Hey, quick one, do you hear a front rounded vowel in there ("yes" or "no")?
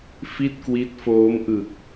no